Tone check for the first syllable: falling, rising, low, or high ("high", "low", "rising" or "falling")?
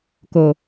low